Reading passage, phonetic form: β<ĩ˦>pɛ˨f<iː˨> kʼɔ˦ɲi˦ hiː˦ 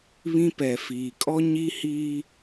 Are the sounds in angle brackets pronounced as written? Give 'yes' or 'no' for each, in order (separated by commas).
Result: yes, yes